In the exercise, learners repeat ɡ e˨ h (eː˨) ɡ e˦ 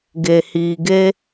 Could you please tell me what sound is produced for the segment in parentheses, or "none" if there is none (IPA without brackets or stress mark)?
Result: iː˨